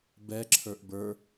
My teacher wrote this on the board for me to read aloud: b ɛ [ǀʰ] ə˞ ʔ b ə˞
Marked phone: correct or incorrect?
incorrect